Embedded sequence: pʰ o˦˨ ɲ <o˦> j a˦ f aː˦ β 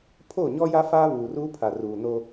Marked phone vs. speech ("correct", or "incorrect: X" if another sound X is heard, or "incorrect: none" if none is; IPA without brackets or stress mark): incorrect: ɔ˦